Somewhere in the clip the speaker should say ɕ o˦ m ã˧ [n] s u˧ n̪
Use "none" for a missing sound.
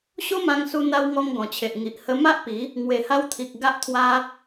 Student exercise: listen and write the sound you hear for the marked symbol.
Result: ŋ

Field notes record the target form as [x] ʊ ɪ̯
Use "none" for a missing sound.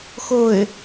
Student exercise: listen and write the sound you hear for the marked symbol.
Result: x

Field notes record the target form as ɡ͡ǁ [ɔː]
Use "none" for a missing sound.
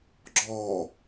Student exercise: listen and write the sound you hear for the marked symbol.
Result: ɔː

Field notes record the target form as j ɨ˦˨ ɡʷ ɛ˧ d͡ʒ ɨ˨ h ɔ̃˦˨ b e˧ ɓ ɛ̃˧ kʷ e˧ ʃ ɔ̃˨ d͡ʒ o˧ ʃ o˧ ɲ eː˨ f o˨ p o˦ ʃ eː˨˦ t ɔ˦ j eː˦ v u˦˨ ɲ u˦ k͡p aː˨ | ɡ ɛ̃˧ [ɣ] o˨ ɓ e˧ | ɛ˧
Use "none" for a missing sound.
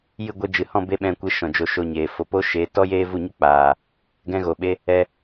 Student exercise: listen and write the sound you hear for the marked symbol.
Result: ɣ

